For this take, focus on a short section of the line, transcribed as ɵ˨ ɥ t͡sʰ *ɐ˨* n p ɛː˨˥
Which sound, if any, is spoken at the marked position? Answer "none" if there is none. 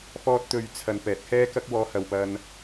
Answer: ɐ˨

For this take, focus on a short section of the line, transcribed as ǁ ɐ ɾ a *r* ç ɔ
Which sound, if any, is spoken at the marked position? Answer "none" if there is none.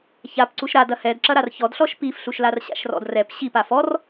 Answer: r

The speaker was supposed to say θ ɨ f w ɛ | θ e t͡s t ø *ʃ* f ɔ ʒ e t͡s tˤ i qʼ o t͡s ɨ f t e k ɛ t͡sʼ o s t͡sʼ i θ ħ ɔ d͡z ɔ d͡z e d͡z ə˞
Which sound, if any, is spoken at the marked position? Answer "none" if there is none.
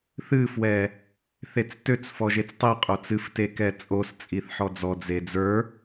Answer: t͡s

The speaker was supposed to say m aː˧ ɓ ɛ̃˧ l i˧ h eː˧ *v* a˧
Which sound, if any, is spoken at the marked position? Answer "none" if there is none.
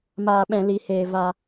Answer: v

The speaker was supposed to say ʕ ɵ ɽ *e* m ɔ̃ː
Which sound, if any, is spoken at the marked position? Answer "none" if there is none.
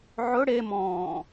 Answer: e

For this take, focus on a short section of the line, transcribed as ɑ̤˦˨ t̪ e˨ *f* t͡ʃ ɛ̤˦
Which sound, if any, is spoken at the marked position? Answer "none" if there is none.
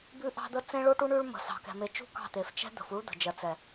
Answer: f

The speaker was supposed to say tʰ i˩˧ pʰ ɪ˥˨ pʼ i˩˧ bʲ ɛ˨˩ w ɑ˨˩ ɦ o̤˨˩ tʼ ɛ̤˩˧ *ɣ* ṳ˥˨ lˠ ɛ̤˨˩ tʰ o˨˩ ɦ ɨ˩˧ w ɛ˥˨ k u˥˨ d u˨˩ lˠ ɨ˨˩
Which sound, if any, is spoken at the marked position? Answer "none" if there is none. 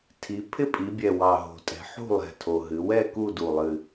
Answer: ħ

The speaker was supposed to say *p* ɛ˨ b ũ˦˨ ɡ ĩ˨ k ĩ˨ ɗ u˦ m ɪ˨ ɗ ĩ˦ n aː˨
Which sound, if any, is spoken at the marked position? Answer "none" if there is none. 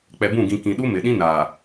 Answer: k͡p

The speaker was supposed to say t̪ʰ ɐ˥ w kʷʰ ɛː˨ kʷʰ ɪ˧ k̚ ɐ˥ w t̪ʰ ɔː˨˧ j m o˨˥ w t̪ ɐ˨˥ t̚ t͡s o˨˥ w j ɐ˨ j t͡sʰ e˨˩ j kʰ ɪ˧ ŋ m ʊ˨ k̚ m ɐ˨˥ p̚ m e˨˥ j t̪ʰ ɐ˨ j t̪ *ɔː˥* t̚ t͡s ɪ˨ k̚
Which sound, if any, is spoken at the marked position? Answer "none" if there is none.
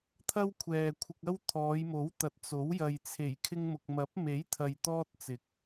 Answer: ɔː˥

